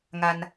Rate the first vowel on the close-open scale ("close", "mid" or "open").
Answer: open